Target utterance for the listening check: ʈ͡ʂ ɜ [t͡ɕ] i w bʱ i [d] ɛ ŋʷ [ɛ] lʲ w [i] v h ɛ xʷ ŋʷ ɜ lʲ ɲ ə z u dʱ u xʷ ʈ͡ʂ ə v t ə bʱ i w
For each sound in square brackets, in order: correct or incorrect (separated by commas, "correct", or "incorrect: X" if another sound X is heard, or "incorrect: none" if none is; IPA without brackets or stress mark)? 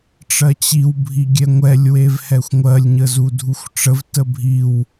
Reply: correct, incorrect: ɡʲ, correct, incorrect: e